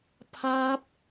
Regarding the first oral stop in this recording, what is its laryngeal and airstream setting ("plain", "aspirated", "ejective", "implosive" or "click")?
aspirated